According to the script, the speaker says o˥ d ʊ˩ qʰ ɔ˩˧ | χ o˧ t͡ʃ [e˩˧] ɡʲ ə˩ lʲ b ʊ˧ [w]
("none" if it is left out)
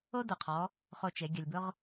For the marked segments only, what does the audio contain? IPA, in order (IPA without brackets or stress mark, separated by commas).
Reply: e˩˧, ʁ